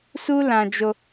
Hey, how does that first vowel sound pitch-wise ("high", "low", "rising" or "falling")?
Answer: high